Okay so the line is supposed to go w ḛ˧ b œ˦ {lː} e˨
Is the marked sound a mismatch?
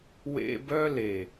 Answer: yes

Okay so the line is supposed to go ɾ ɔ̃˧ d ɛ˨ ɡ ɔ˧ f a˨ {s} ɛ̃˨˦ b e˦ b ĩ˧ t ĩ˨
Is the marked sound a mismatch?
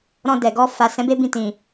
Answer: no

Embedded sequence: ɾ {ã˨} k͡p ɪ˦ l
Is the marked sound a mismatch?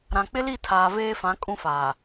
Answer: no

